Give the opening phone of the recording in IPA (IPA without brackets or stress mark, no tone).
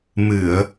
m